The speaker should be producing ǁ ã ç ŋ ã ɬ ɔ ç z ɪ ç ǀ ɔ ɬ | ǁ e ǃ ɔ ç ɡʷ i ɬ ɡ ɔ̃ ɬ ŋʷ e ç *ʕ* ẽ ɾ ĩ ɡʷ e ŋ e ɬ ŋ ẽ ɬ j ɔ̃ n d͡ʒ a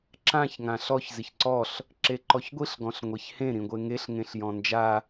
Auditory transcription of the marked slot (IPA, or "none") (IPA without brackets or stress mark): h